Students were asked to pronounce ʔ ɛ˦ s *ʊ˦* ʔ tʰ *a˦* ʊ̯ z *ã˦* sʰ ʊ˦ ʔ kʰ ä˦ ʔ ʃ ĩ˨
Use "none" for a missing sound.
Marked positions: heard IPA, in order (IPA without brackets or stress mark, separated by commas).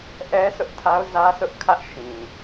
ʊ˦, a˦, ä˦